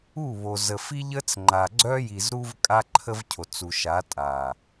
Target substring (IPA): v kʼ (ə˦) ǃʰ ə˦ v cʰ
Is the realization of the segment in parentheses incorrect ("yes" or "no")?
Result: yes